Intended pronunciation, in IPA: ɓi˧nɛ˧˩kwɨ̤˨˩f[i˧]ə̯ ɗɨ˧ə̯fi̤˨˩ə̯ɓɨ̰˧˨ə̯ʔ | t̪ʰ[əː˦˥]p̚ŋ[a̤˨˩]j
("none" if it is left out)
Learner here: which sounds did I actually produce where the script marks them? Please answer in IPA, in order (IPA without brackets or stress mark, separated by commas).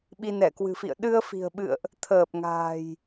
ḭ˧˨, əː˨˩, a̤ː˨˩